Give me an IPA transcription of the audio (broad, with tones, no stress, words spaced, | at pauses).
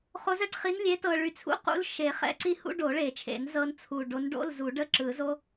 χo˨˦zɛ˥˩ʈχi˨˦n lʲe˨˦tɤ˨˩ ɭy˨˩t͡sʰṵ˥˩qṵ˧˥˧lʃe˨˩˦ χɛ̰˦˥ǀi˦˥hṵ˦˥ ɖo˨˩˦ɭe˨˩˦t͡ʃʰḛ˨˩˦n zɤ˦˥nt͡sʰu˨˩ ɖo˨˦nɖo̰˧˥˧l zu˨˩˦ ɖə˧˥˧ ǁɯ˨˩˦zo˦˥